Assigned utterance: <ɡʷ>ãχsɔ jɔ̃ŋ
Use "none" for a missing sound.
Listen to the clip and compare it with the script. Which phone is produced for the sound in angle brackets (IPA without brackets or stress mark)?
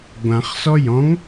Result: ɡʷ